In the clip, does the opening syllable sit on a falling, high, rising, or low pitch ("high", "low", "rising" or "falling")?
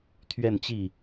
falling